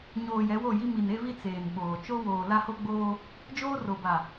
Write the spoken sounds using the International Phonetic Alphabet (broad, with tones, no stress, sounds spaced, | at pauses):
ɲ oː˨ j ɛ˨˦ w o˦˨ j i˦ m i˨ n e˦ v i˦ t͡s eː˨ n ɓ oː˨ t͡ʃ o˦ w oː˨ l a˦ h o˦ ɡ͡b oː˦ | d͡ʒ oː˦ r o˨ b a˨